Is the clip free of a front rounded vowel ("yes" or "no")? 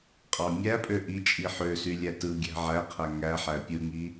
no